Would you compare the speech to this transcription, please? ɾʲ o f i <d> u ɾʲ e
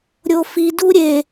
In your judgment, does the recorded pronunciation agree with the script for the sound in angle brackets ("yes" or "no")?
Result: yes